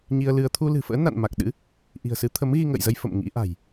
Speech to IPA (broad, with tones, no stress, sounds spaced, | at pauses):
ɲ i˧ ə̯ l ɨ˧ ə̯ t̪ʰ u˧ l ɨ̤˨˩ f ə̰ː˧˥ n a̰˧˨ n m a˨˩ k̚ ɗ ɨ̰˧˥ | ʔ i̤˨˩ ə̯ s ɨ˨˦ t̪ʰ ə˨˦ m ɣ i˧ ŋ ə̰ː˧˨ j z ə˧ j f ə̰˧˨ m ŋ ḭ˧˥ ʔ a̤˨˩ j